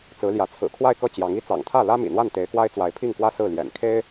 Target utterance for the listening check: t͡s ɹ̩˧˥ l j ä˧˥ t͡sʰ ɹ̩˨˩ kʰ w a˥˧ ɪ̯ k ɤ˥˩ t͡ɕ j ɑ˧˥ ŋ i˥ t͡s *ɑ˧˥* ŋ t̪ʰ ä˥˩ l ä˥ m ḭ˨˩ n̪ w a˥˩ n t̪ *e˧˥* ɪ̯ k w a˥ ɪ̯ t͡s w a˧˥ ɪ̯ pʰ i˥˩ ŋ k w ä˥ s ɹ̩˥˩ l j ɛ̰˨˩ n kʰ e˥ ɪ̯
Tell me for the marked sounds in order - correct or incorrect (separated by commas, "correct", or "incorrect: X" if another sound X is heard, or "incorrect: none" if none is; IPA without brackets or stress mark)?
incorrect: ɑ̰˨˩, correct